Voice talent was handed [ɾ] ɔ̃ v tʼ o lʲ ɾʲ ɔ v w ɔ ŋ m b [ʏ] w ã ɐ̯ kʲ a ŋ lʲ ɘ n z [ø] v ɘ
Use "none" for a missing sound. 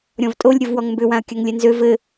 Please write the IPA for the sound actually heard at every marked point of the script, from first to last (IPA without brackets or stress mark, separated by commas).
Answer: ɾʲ, ʏ, ø